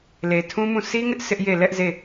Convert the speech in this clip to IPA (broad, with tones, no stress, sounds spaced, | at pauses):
l e˨ tʰ ũ˦ m ũ˦˨ sʰ i˦ ŋ ɪ˦ ʔ sʰ ɪ˦ ʔ j e˦˨ l ɛ˦ ʔ z e˦˨